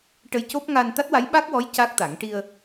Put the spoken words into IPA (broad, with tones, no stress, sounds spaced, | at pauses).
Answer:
ʈ ə˧ j c o˦˥ p̚ ŋ a˧ n t̪ a˦˥ t̚ w a˧˥ j ɓ a˦˥ k̚ w ɔ˧˥ j c a˦˥ k̚ t̪ a˨˩˦ ŋ ʈ i˧ ə̯